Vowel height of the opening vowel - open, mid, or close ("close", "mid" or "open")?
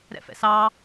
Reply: mid